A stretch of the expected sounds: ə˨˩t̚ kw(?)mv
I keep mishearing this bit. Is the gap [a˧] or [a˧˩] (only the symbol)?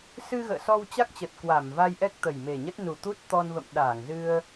a˧˩